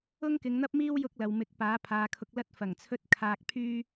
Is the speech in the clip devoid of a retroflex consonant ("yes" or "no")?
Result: yes